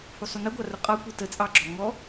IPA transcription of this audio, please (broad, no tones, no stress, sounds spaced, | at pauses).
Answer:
h u sˤ u n ə ɡʷ ɑ r ʊ qʼ ɒ kʷ i t ə t͡sʼ ɑ ɡ͡ǁ ɔ ŋ ɔ